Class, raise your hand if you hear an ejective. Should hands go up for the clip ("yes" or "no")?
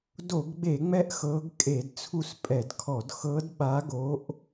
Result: yes